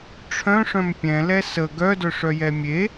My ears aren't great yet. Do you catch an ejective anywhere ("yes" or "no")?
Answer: no